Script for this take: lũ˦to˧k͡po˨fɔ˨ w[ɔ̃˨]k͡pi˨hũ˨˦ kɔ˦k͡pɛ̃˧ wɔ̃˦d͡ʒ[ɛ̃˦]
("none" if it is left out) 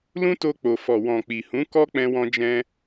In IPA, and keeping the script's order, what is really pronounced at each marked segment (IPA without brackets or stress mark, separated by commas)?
ɔ̃˨, ɛ̃˦